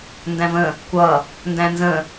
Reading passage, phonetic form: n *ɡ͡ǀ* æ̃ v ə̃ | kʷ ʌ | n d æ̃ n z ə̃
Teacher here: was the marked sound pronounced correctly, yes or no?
no